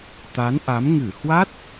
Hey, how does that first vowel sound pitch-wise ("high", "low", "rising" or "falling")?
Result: rising